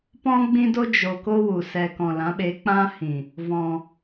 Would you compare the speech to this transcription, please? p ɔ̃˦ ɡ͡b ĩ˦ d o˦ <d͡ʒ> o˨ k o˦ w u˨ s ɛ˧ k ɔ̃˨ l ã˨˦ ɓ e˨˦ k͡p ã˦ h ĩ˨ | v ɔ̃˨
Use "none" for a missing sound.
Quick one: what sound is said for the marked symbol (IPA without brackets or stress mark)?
d͡ʒ